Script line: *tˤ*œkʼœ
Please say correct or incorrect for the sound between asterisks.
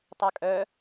correct